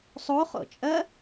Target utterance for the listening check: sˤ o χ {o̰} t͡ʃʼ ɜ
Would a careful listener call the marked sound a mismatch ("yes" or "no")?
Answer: no